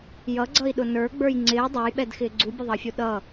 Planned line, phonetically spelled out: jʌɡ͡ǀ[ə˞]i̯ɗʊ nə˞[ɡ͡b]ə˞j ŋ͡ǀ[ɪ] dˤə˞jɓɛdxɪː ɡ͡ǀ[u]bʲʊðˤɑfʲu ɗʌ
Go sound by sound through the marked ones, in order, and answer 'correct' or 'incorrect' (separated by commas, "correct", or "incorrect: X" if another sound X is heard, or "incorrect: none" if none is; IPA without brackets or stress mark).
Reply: incorrect: ʌ, correct, incorrect: ɪː, correct